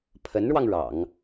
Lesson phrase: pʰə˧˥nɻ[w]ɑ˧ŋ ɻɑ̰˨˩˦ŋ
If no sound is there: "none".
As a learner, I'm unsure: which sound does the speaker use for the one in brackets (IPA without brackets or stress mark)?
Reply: w